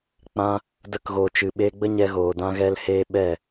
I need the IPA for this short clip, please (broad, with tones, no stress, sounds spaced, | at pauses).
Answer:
k͡p ã˧ | d ə˧ k ɣ oː˨ t͡ʃ ɨ˨ ɓ eː˧ ɡ͡b ə˦ ɲ ɛ˧ ɣ oː˨ d ã˧ ɣ ɛ˧ l h eː˧ ɓ ɛ˦˨